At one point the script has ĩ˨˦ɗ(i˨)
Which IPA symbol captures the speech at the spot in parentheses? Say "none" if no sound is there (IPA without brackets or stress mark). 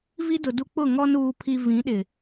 ɪ˨